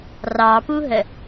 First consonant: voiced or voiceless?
voiced